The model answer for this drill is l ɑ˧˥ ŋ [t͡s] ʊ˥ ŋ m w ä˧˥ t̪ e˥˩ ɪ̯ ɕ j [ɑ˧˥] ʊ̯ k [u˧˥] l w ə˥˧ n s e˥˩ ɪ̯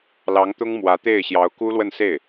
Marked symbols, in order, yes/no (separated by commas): no, yes, no